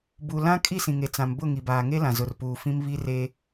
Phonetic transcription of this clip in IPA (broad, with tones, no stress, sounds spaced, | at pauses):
b u˨ l ã˦ kʼ i˦˨ s ĩ˨ ŋ e˨ t͡s ã˨ m b ʊ˦˨ ŋ i˨ b aː˨ ŋ e˦ l ã˨ z ʊ˨ r p uː˨ f ĩ˦ m β i˦ r e˦